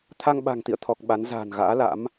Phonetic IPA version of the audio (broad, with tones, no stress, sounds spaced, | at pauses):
t̪ʰ a˧ ŋ ɓ a̤˨˩ ŋ t̪ ḭ˧˨ ə̯ t̪ʰ ɔ˨˩ k̚ ɓ a˨˦ n z a̤ː˨˩ n ɣ a̰ː˧˥ l a̰˧˥ m